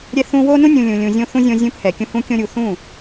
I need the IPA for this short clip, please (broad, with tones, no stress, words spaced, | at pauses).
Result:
ɾʲɛ˦θũ˦ wo˦nũ˦ nʲũ˧ lʲũ˧lʲũ˧zʲõ˦θũ˦ zʲõ˧zʲũ˧phɛ˨kʲũ˧ hũ˦kʲõ˦ɾʲu˧ θũ˦˨